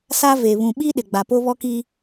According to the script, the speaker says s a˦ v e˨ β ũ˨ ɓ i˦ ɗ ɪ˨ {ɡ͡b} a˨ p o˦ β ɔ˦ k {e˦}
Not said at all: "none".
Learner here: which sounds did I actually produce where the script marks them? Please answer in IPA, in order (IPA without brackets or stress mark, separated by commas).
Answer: ɡ͡b, i˦